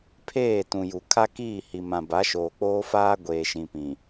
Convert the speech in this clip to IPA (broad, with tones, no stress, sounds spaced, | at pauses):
pʰ eː˦˨ t ũ˨ j u˨ kʰ a˦ k iː˦˨ h i˨ m ã˨ b a˨˦ ʃ oː˨ k͡p oː˦ f aː˦ ɡʷ eː˨ ʃ ĩ˨ p ĩ˨